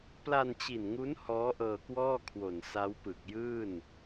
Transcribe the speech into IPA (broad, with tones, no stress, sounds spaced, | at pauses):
p l a˧ n t͡ɕ i˨˩ n ŋ u˦˥ n h ɔː˦˥ ʔ ɤː˧ k w ɔː˥˩ kʰ w o˨˩ n s a˦˥ w p ɯ˨˩ k̚ j ɯː˥˩ n